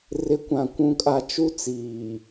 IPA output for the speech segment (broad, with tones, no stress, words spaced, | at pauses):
rɪ˨˦kʷã˨ kʷũ˨kʼa˨ t͡ʃu˦ t͡siː˨